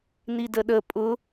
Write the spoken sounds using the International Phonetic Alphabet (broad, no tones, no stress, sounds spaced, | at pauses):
n i d ə ɗ ə pʼ ʊ